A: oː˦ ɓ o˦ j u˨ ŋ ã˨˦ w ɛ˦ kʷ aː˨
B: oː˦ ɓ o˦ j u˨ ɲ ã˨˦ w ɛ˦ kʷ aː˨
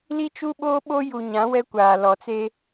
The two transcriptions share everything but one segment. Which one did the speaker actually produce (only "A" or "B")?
B